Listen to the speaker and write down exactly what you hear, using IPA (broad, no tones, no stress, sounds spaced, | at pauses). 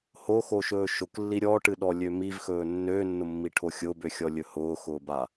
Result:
h o x o ʃ ɵː ʃ ʊ k lː i ɾʲ ɔ ʈ ɨ ɗ ɔ lʲ ø m i v x ɵː nː øː nː ʊ mː i ʈʰ o xʲ ʊː b ø xʲ ɔ lʲ ɵ h ʊː x ʊː b a